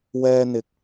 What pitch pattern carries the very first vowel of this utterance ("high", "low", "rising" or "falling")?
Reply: high